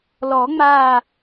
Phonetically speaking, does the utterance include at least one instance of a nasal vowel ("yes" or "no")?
no